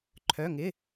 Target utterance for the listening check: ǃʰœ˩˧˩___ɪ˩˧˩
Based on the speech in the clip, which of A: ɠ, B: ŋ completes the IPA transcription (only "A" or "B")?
B